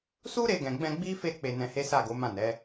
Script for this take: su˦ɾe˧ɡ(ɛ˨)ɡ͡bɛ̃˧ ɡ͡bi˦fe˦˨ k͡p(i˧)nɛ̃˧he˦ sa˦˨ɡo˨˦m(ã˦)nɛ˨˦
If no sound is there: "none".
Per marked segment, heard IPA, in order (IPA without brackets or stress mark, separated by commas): ɛ̃˨, e˧, ã˦˨